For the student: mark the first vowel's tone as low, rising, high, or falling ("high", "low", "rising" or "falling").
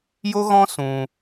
high